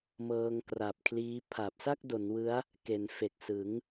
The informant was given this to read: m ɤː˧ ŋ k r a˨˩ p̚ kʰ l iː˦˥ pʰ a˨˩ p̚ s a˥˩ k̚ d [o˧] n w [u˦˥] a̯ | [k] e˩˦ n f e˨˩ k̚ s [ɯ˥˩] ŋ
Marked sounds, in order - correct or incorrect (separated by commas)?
incorrect, incorrect, correct, incorrect